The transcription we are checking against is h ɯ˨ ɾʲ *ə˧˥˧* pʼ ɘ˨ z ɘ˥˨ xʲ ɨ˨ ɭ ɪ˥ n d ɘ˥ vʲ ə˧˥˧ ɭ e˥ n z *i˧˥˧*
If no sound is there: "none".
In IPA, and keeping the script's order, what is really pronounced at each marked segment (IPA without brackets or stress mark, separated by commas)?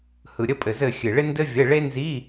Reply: ə˧˥˧, i˧˥˧